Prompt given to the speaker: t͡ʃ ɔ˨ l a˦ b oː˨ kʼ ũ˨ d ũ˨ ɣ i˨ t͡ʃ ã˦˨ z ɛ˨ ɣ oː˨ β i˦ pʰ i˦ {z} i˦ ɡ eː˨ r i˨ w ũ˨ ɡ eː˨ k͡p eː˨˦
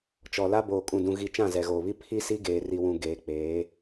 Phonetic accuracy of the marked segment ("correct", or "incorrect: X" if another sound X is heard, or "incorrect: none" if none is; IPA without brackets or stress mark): incorrect: s